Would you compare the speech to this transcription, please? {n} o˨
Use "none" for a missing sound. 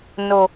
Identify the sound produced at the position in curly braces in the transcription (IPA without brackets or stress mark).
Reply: n